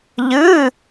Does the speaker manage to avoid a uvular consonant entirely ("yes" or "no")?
yes